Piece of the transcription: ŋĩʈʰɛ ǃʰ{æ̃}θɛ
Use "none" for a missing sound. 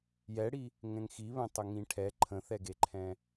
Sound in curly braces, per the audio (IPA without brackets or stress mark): ə̃